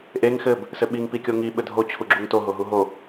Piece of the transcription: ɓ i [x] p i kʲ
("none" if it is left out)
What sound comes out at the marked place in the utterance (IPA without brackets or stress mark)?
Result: ŋ